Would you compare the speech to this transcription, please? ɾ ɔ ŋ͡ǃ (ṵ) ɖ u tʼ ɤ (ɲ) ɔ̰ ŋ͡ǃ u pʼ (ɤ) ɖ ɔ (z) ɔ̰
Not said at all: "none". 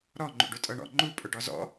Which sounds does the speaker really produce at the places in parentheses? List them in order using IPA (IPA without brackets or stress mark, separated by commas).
ṵ, ɳ, ɵ, z